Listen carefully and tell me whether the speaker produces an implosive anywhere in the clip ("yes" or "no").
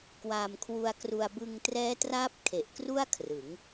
no